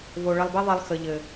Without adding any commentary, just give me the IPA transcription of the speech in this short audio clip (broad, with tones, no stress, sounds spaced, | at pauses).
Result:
v o˧ ɭ ə˧ lˠ b e˦ ðˤ e˧ lˠ x ə˨ ʎ ɘ˨